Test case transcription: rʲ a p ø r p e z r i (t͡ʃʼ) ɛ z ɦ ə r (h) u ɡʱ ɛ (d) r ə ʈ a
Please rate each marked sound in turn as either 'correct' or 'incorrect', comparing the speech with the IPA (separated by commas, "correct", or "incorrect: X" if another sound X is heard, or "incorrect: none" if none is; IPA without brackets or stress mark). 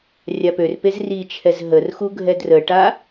incorrect: t͡ʃʰ, incorrect: x, correct